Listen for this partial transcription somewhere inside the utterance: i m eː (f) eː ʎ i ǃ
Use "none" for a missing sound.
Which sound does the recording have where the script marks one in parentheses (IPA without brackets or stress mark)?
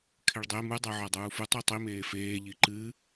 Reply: f